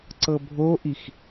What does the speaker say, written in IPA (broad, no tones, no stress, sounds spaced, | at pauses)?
ǀ ɤ bʱ o ʔ i x